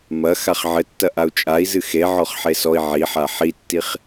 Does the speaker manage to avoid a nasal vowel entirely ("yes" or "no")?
yes